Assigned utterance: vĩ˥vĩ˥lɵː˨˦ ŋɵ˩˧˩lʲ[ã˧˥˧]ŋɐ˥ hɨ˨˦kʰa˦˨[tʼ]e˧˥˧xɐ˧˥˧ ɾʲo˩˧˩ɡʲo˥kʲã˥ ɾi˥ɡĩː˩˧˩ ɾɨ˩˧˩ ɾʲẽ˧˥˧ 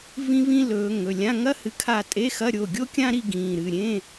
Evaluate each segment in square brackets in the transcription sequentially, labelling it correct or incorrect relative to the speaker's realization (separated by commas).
correct, correct